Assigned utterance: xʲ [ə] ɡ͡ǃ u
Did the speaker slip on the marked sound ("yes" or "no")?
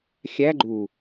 yes